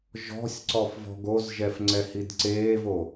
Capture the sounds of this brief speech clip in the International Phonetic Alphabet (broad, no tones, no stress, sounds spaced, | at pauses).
ʒ ɔ̤ sʲ ǀ ɔ f v ɔ̤ ɡ o z ʒ ɛ f ŋ͡ǀ ɛ h i d ǀ eː v o